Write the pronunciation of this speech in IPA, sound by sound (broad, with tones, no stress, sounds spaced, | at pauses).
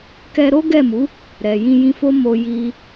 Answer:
k ɛ˧ ɾ o˦ ɡ ɛ˦˨ m u˨˦ | ɾ ɛ˨ j ĩ˧ j ĩ˧ f o˦ m o˧ j i˧